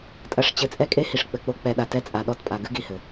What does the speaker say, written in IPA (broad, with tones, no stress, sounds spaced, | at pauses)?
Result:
tʼ ɐ˨ ʂ t͡ɕ ɘ˨ t͡sʼ ɛ˦˨ kʼ e˦ h i˨ ʂ k͡p ɘ˨ k͡p o˦ k͡p ɛ˨ ɗ a˨ t ɛ˦ t͡sʼ a˨ ɗ ɔ˦˨ t pʼ a˨ ɡ ɨ˦ ɡ i˨ h ɘ˨